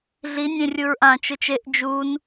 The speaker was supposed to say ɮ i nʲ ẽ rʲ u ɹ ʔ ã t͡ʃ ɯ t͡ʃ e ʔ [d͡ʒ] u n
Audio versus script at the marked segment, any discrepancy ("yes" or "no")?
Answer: no